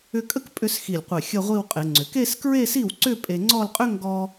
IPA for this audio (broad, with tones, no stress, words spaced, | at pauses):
ʏ˥ kʼə˥k pʼʏ˥˧sxi˧˩lʲqʷe˧˩ xʲə˥˧ʁʷi˥˧w qʼe˩˧ŋ͡ǀʏ˩˧k e˥˧skɹe˥˧si˥˩wǀʏ˥˧ pʼe˧ŋ͡ǀɔ˥˧lqʼʏ˥ ŋɡɔ˥